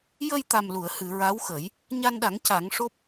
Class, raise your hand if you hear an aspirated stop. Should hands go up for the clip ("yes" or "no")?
no